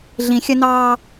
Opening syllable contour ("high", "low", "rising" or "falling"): low